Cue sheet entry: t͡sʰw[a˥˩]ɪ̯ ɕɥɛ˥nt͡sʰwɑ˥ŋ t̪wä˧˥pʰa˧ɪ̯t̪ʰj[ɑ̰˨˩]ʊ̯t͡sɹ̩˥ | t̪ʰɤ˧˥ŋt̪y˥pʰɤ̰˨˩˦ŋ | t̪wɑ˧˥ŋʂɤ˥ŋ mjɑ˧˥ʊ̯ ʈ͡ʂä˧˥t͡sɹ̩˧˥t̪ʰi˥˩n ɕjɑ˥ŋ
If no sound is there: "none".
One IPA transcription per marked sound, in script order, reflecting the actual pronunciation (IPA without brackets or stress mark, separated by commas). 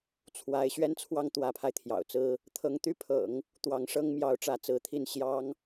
a˧˥, ɑ̰˨˩